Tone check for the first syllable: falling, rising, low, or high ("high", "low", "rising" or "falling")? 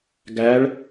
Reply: rising